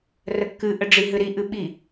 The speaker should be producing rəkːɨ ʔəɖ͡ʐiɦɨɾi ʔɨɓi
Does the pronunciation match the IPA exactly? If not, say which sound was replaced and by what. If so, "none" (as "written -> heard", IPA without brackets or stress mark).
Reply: none